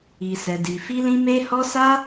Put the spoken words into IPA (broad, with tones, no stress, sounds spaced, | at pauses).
i˧ s ɛ˧ d i˧ f i˦ l ĩ˦ m e˦ h ɔ˦ s a˦